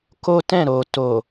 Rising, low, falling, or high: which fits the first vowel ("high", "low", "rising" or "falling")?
high